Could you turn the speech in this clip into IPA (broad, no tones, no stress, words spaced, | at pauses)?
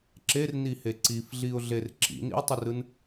ǁernihe ǀifɮiʊ̯ɮer ǁḭnḭʊ̯tˤərɯn